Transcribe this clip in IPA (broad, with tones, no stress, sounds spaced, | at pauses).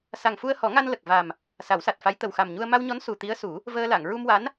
s a˨˩ ŋ f u˧ ə̯ h ɔ˨˩˦ ŋ a˧ n l ə˨˩ k̚ v a˨˩ m | s a˨˩˦ w s a˨˩ t̚ f a˧˥ j t̪ ə˨˩ w x a˨˩ m ɲ u˧ ə̯ m a˧ w ɲ ɔ˧˥ n s u˨˩ t̪ i˧˥ ə̯ s u˨˩˦ | v əː˧ l a˨˩˨ ŋ ɹ u˧ m w a˧˥ n